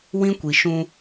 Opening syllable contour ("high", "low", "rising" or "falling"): high